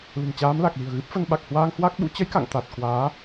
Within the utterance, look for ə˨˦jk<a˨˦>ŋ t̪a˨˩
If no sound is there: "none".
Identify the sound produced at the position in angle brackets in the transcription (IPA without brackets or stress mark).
a̰˧˨